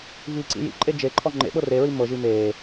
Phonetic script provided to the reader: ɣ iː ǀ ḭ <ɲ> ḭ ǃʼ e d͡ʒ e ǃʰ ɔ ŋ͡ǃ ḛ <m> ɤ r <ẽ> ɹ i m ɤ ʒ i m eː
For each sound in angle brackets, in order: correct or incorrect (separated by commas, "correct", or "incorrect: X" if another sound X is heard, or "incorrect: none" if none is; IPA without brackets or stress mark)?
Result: incorrect: j, incorrect: ɓ, incorrect: e